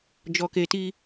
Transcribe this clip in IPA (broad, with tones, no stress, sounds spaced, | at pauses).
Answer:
d͡ʒ ɔ˨ k e˨ t i˧